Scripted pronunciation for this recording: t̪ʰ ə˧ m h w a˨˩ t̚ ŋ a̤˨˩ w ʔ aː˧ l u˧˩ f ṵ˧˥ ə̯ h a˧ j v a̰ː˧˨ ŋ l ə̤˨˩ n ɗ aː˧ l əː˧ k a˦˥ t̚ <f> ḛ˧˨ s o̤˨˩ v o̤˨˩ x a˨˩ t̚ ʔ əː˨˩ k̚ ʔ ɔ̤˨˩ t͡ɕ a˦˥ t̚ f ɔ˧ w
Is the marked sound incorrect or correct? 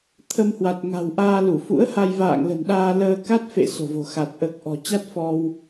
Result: correct